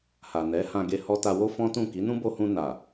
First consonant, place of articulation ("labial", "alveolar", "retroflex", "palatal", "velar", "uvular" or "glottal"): glottal